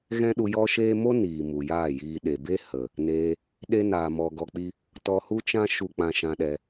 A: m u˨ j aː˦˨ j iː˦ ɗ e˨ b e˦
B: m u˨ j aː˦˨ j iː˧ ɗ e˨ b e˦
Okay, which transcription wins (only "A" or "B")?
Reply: B